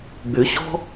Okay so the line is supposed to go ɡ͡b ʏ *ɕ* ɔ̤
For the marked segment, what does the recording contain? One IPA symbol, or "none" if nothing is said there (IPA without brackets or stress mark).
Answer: ɕ